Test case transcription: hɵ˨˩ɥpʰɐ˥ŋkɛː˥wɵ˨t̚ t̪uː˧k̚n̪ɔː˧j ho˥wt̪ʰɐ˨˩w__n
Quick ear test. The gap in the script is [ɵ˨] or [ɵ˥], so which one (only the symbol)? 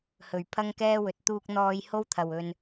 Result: ɵ˨